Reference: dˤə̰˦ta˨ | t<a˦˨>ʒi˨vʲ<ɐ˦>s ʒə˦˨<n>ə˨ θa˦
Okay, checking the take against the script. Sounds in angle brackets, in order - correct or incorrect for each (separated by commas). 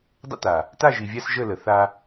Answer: correct, incorrect, incorrect